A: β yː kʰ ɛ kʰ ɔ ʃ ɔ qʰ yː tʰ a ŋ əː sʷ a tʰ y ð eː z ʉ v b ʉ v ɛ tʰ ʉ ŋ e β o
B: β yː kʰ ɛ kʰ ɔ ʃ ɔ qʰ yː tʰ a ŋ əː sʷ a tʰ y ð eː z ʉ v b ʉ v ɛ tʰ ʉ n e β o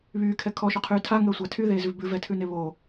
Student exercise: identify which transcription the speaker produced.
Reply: B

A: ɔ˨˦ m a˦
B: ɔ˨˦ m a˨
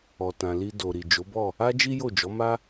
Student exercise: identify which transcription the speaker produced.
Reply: A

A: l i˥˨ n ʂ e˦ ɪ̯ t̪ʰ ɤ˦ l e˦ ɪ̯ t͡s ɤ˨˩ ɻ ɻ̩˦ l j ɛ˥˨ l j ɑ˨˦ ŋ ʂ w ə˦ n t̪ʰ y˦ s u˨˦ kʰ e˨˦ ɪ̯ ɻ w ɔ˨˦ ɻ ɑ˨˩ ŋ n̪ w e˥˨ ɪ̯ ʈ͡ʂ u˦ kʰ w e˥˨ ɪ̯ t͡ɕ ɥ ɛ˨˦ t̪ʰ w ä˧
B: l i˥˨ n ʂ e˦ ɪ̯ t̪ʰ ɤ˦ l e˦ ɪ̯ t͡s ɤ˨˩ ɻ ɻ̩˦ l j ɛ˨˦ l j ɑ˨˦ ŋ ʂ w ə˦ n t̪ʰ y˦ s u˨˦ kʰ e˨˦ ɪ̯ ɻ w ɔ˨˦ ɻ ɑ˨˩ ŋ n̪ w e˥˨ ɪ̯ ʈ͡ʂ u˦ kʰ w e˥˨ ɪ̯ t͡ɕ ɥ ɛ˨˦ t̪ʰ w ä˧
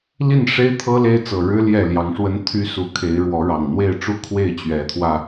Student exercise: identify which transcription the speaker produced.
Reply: A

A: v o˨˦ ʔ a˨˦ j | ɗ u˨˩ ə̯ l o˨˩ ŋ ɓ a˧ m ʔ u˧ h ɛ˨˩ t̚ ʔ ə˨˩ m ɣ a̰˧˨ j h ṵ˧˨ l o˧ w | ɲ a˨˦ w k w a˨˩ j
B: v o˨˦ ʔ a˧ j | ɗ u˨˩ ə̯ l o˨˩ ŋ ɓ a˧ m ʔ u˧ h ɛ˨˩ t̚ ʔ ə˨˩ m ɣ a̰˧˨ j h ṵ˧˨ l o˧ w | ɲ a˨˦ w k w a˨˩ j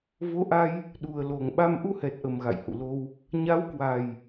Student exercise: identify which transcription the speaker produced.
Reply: B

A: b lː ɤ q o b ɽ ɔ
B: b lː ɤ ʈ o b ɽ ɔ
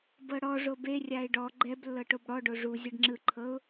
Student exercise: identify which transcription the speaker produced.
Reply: B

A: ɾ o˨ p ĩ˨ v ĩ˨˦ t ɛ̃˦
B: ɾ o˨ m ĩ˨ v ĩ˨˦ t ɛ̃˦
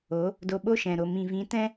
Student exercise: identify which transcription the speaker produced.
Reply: B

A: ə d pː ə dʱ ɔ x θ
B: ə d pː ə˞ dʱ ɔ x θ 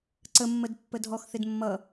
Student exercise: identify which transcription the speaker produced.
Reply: A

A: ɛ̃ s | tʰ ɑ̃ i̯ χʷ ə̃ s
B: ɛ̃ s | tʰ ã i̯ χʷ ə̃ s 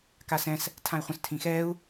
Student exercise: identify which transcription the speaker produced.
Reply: B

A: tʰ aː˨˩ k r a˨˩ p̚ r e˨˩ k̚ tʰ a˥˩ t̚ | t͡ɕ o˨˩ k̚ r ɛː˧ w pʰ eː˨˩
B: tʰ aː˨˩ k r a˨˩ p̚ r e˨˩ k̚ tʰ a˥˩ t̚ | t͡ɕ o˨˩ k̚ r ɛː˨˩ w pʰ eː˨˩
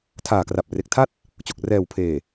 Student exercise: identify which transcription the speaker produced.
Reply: B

